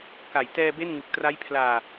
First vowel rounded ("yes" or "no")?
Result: no